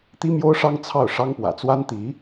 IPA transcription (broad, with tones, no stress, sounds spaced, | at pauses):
t̪ i˥ m j o˥ ʊ̯ ʂ ɑ˥ ŋ t͡sʰ ɑ˥˩ ʊ̯ ʂ ɑ˥ ŋ p w ä̰˨˩ t͡s w a˥ n t̪ i˧˥